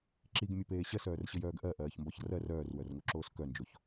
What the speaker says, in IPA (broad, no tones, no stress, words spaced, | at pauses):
ǁiɡmʲepeː ɕɜsœːrɕɘjœːɡ ʔɜʔɜːçmbɒç rɜr œːrwœrŋoǁoːs kœnd͡ʒoç